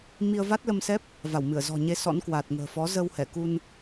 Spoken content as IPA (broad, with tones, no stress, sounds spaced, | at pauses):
m i˧ ə̯ v a˦˥ t̚ l ə˧ m s ɛ˦˥ p̚ | v a˧˩ w m ɨ˧˩ ə̯ z ɔ̤˨˩ ɲ e˧ s ɔ̰˧˥ n k w a˨˩ t̚ ŋ ə̤ː˨˩ f ɔ˨˦ z ə˧ w h ɛ˧˩ k u˧ n